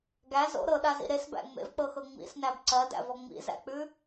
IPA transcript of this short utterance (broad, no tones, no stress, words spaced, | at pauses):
ɡæ zo̰ ɾɤɗazḭ ɾesbæ̰ ŋ͡mḛvk͡pɤxɤ ŋ͡mḭsnæb ǀɜdæ̰vɔ ŋ͡mḭzæ̰k͡pʉ